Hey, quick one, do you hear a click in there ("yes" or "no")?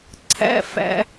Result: yes